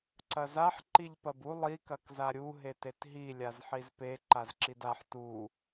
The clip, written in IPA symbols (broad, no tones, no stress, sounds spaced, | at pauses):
ǀ ɐ z a ħ ǃ i ʎ p ɐ b u lˠ i k ɐ k z a ɾʲ u ɦ e t e t ɦ i lʲ a z ħ i z p e ǃ a z ǁ i d a ħ t u